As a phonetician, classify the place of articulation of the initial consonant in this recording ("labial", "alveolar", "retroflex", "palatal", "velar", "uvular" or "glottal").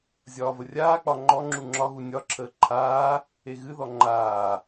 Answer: alveolar